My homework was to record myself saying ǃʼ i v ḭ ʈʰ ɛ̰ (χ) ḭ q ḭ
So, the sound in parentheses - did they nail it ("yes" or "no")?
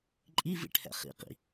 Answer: yes